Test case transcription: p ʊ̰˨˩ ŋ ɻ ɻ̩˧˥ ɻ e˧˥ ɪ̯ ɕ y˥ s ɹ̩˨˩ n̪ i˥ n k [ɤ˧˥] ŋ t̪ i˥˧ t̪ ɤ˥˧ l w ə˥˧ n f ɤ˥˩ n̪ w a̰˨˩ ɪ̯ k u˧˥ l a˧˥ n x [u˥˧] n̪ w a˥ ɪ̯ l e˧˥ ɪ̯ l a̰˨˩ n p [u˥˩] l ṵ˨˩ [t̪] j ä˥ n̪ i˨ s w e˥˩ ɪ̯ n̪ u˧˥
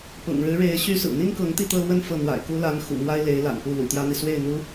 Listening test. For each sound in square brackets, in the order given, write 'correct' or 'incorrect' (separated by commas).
correct, incorrect, correct, correct